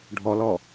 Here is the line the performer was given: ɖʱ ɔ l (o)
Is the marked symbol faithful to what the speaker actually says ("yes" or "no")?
no